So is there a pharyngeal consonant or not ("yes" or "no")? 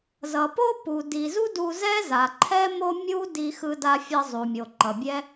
no